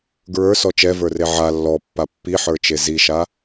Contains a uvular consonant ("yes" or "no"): no